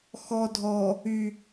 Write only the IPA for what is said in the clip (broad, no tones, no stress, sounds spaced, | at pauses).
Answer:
x ɔ dʱ ɔ | y